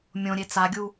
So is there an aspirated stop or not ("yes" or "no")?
no